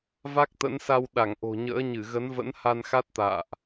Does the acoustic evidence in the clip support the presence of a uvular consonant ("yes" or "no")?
no